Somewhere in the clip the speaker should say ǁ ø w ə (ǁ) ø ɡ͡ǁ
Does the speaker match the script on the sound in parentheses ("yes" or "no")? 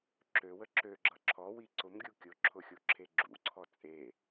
yes